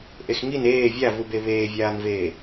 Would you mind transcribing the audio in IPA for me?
ʔexŋin eː vʲavube βeːvʲaːnveː

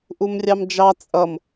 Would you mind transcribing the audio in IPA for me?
ʔumrʲɑmd͡ʒɑ t͡sʼʌm

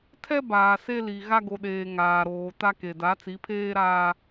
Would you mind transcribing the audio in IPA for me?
tʰɛ˦ baː˨se˦li˨ ɣa˦ɡo˨ɗeː˨ ŋaː˨ɾoː˨ta˦ke˨ da˨˦t͡si˨˦pʰeː˦ ɾaː˦

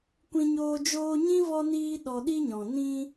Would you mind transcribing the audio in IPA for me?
kʷĩ˧ɲoː˧ d͡ʒoː˧ɲĩ˦vɔ˧niː˧ ɗɔ˧ɗi˦ɲɔ̃˨ nĩ˧

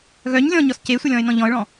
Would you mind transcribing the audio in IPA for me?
ɣœɲ lʲɔ̃ɲɔs cesʷɘlʲɔ̃ɪ̯nɔ̃ ʎɔ̃ə̯ɭɔ̃

